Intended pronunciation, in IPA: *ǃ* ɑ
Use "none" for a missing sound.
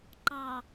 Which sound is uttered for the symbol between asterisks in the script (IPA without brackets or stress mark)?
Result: ǃ